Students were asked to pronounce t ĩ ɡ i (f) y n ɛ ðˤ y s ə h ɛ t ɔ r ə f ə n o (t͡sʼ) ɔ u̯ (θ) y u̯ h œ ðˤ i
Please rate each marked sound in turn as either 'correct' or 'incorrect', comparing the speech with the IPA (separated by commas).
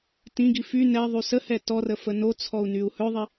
correct, incorrect, incorrect